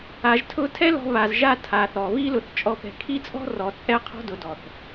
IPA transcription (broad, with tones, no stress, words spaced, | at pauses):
a˨ʒtʰʊ˧tʰɛ˦ lɔ̤˦βa˧zʒa˦ tʰa˨θɔ˨ βi˦lʊ˨˦θt͡ʃʼɔ˧ pɛ̤˨kʰi˦t͡sʼɔ̤˦rɔ˨ t͡sʼɛ˦qʰɔ̤˦ dʊ˨˦dɔ˨θ